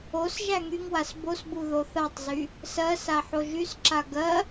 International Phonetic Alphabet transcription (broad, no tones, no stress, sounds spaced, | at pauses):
o s ʒ æ ŋ y ŋ w a s b o s b u ð o θ a tˤ z y | s ɜ s a ħ o ʒ y s ǁ a ɡ ɜ